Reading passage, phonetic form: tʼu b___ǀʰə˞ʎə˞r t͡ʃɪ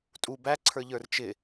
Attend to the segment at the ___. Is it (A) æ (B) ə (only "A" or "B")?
A